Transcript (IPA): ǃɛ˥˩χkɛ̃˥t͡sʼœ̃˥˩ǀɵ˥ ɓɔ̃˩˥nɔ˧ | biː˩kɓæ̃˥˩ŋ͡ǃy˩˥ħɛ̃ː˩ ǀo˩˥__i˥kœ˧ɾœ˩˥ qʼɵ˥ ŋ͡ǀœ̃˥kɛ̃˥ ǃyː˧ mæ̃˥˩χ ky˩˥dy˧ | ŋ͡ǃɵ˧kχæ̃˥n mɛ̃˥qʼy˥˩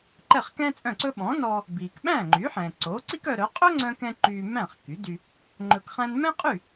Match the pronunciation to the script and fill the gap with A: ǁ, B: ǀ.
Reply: B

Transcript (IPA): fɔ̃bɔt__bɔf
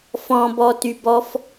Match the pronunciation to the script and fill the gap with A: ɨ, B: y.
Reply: B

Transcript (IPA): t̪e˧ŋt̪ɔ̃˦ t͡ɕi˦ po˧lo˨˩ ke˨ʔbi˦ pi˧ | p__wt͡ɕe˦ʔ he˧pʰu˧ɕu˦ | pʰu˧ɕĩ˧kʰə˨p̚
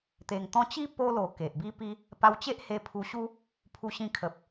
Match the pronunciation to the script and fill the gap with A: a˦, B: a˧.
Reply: B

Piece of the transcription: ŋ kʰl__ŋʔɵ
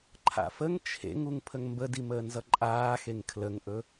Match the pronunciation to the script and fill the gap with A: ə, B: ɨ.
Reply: A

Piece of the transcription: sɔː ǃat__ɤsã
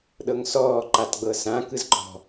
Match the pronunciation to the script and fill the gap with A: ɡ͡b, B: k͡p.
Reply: A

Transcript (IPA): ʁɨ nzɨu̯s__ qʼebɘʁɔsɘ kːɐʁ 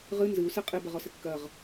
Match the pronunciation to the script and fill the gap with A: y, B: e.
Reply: B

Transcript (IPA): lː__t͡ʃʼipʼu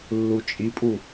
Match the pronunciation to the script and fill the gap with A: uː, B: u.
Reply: B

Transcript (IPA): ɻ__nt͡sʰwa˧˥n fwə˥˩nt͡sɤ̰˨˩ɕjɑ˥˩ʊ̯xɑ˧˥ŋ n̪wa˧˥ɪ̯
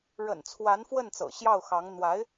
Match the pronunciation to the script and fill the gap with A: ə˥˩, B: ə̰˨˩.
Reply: B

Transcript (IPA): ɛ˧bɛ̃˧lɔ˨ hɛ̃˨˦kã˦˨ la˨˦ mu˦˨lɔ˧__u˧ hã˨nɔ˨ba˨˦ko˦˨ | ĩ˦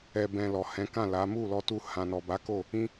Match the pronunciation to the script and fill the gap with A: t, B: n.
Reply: A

